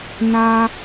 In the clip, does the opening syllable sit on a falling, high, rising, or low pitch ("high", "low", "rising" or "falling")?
high